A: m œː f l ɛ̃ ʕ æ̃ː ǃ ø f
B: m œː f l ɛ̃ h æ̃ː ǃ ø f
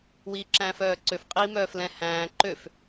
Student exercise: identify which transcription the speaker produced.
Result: B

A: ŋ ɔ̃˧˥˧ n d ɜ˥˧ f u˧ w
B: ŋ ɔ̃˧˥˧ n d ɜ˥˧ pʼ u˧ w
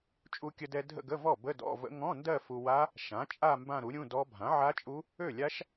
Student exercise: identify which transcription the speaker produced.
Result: A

